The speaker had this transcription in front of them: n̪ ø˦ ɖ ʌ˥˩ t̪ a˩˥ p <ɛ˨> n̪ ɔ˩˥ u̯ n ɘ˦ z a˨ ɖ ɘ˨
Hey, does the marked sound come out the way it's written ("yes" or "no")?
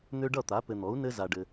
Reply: no